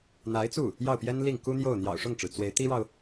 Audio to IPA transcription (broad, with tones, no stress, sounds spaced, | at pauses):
n̪ a˧˥ ɪ̯ t͡s u˥˩ | j ɑ˥˩ ʊ̯ p j ɛ˥ n l i˥˩ ŋ k u˥ n̪ j o˥˩ ʊ̯ n̪ j ɑ̰˨˩ ʊ̯ ʂ ʊ˥˩ ŋ ʈ͡ʂ ɻ̩˩ t͡s w e˧˥ ɪ̯ t̪ i˥ ɻ ɑ˨ ʊ̯